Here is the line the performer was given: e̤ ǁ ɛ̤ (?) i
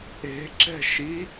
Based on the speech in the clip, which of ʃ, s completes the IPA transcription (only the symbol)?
ʃ